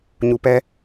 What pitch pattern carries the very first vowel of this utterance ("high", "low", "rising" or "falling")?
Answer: low